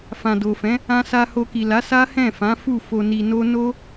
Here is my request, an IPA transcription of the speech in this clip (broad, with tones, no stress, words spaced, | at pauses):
fã˨do˨fɛ̃˨˦ | ã˧sa˧ ho˧ki˨la˨˦ sa˦hɛ̃˦˨ fã˨˦ fu˦˨fo˧ni˧no˦ no˦